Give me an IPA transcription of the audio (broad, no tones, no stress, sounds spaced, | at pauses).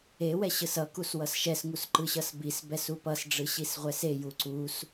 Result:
e w ɛ ɕ ɯ s ʌ k u s w ʌ s ʃ ɛ s ŋ u s ǃ ɯ ɕ ʌ s b i s b ɛ s u p ʌ s ɖ͡ʐ ɯ ɕ i s ʁʷ ɛ s e j u ǀ u s